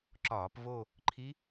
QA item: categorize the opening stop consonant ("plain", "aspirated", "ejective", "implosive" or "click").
click